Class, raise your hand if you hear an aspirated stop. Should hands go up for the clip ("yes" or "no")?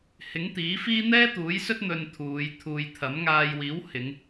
yes